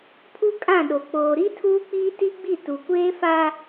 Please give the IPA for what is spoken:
pʰ u˦ kʼ ã˦˨ ɗ o˨ k͡p oː˨ ɾ i˦ tʰ uː˦ k͡p iː˦ t i˦ ɡ͡b i˦˨ t u˨ kʷ eː˦ f a˦

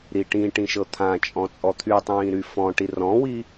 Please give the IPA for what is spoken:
ɾ i ʈ ĩ ʈ ĩ ʃ ɤ t̪ʰ ã t͡ʃʼ ɔ̃ t͡sʼ ɔ t̪ʰ y tˤ ĩː ɾ y f ɔ̃ ʈ i r ɔ̃ w i

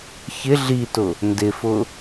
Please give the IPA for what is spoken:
ç ɪ ɮ i t ʊ | n d ɪ f ʊ

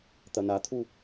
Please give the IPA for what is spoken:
t̪ ɐ n a t̪ʰ u

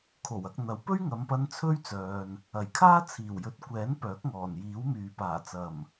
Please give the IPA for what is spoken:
kʰ o˨˩ w ɐ˧ k̚ n̪ ɐ˨˥ w p ɵ˥ ɥ ŋ ɐ˨˧ m p ɐ˧ n t͡sʰ ɵ˥ ɥ t͡s œː˨ n | ɐ˨˩ j kʰ aː˥ t͡sʰ iː˨˩ w j ɵ˨˥ t̚ kʷ ɛː˨˥ n p œː˨˥ k̚ ŋ ɔː˨˩ n j iː˨˥ w m yː˨ p aː˨˩ t͡s ɐ˨˩ m

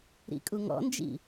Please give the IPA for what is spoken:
ɾ ḭ kʼ u ŋ ɔ̰ n d͡ʒ ḭ

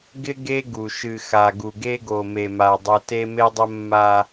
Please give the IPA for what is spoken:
ɡ ɪ˦ ɡ e˦ ɡ u˨ ʃ ɨ˨ x a˨ ɡ u˨ ɡ e˦ ɡ o˨ m e˨ m a˨ dˤ o˦ t e˦ m e˦ dˤ ə˦ mː a˦

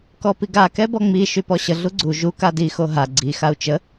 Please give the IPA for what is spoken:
k ɔ p i ɡ a k ɛ b ɔ ŋ͡m i ʃ y p ɔ ɕ ə ɮ u ɡ͡ǀ u ʒ u k a d i x o ɦ a ɡ͡ǀ i x a u̯ t͡ʃ ə

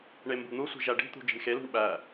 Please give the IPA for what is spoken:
ɳ e m b ṳ n̪ u sʷ i̤ ʒ æ ɖ i̤ t̪ ṳ d͡ʒ i̤ ɳ x e l ṳ ɳ ɓ æ

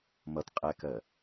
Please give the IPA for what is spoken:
m ʌ t qʼ ɛ k ɜ

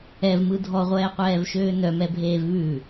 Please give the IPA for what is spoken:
ɛ v m ɯ dʱ ɔ ʁʷ ɛː qʷ ɛː v ʃ øː n œ m ɛ bʱ eː v β ʉ

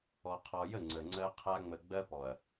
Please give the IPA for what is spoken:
ɔ˨ qʰ ɔ˨ j ə˦˨ ŋ͡ǀ ə˨ ŋ͡ǀ ɜ˦ qʰ a˦ ŋ͡m ə˨ ɡ͡b ɜ˦ p ɔ˨ ɐ̯

